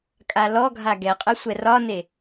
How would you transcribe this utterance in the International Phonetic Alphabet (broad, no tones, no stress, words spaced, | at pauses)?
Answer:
kʼalɔɡʱa ɡɛqʼə sʷɛrɒne